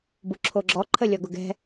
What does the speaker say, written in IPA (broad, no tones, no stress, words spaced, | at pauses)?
buǁʰoɡ͡ǁɔ ǃʰəlʲɔɡʊɡɛ̤